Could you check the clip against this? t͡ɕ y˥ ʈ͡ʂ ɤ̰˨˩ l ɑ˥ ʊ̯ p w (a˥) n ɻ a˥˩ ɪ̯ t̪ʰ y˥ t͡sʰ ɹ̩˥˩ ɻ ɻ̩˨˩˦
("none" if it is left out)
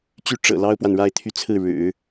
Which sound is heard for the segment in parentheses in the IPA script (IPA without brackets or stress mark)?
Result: a˨